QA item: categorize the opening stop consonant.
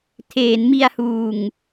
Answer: aspirated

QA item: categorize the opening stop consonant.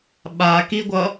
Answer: implosive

